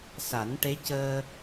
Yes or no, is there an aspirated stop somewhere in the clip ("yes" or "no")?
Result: no